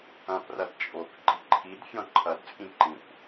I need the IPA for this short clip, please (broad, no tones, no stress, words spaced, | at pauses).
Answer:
ɐ̃prɐd t͡ʃʼok ɡ͡ǃiǃʰidfʲɔ̃ ǃʰɐdt͡sʼĩ ǃĩkʷ